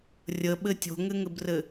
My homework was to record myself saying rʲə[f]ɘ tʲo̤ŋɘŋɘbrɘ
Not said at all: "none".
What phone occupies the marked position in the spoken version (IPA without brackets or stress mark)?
ɓ